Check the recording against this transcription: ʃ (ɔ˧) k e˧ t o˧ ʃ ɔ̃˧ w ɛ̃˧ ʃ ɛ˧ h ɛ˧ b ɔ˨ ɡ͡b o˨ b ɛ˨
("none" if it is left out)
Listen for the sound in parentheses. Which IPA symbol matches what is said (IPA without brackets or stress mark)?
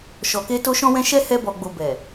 ɔ˨